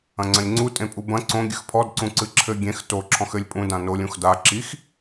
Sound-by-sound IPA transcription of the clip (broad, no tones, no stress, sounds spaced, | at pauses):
ɐ̃ ŋ͡ǀ ɐ̃ lʲ ŋ͡ǀ u tʼ ẽ pʼ u b ɐ̃ ǀ õ ɡʲ ɨ x pʰ ɔ d ǀ ũ ǀ ɨ ǁʰ ɘ ɡʲ ẽ x t o ǁʰ ɔ̃ x ɘ lʲ pʼ ũ d ã n o lʲ ũ x d a ǁ i x